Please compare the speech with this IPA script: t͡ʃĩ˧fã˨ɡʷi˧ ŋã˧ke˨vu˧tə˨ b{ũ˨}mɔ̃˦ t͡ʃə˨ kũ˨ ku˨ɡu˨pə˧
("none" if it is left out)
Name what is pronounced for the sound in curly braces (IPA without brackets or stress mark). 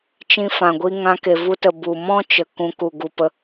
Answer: u˨